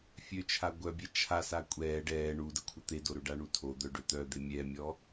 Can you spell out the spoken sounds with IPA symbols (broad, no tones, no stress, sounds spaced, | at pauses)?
fʲ ø t͡ʃʰ a ɡʷ œ bʲ ɛ t͡ʃʰ a s a kʷʼ ɛː ɖ ɛː ɳ u d ə kʷʰ ə t̪ e d o ɾ ø ɖ a ɳ u tʰ o d̪ œ ɖ ø t̪ œ d̪ e mʲ ɛ mʲ ɔ